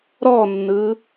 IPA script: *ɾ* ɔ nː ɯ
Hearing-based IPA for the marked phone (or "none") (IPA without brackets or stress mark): ɾ